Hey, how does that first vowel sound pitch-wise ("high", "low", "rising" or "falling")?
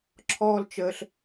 high